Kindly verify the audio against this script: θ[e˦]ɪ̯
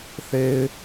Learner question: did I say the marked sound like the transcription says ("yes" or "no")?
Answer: yes